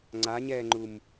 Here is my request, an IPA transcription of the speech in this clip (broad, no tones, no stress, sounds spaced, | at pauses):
ŋ͡ǀ a ɲ ɛː ŋ͡ǃ u m